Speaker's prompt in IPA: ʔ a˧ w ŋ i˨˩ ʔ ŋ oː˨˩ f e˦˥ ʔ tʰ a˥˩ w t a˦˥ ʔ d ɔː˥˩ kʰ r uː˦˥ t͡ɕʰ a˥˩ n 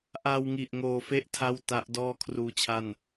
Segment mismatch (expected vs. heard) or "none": none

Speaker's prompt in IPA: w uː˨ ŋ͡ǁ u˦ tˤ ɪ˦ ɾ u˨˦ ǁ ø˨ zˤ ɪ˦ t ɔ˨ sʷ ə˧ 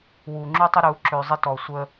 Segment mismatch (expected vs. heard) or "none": none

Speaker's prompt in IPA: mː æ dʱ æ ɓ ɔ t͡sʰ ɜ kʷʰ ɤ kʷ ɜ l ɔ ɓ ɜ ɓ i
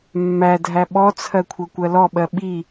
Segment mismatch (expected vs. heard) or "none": none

